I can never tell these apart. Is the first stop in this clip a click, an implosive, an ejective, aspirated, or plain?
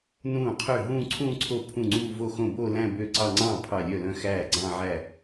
aspirated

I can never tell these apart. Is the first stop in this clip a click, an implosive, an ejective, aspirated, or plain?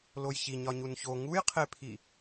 aspirated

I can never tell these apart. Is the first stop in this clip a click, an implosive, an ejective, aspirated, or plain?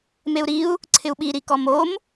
click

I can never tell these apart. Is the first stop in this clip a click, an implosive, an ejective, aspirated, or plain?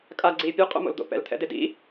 ejective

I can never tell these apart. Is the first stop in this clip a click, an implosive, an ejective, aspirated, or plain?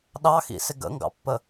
implosive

